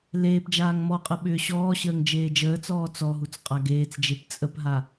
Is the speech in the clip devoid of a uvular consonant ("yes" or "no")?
no